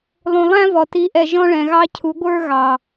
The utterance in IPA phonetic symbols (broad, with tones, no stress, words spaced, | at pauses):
lˠũ˨lˠæ̃˦vɔ˨ ti˨˦ʔɛ˨ ʒɔ̃˦ɭɛ̃˨ɣɑ˦cʰu˨˦ ɡʷə˞˦ɣɑ˨